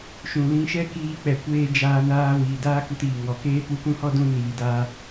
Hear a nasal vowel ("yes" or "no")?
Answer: yes